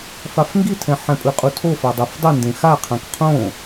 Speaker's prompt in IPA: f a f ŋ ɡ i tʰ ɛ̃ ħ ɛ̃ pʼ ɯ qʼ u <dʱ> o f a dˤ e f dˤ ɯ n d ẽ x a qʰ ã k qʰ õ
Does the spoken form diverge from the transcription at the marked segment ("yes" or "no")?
yes